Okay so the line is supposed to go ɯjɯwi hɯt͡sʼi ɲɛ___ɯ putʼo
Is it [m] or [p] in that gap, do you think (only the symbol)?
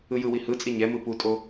m